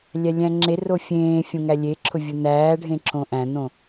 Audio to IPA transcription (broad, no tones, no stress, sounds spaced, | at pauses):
lʲ æ lʲ æ̃ ŋ͡ǁ e r o fʲ ẽː fʲ õ ŋ æ lʲ e ǁʰ ʊ vʲ ʊ n̪ æː ɖʱ ẽ ǁ õ ʔ æ̃ n̪ õ